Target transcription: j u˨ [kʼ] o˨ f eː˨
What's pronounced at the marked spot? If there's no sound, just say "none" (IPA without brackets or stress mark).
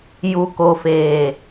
k